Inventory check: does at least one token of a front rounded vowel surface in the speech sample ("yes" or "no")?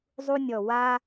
no